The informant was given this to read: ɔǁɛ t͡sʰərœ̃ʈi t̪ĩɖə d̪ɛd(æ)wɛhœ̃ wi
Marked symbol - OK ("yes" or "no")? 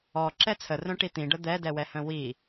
no